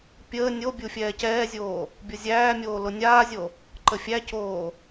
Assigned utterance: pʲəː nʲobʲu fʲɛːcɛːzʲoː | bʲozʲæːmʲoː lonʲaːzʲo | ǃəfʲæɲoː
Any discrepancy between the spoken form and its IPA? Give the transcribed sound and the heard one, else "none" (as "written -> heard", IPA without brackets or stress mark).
ɲ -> c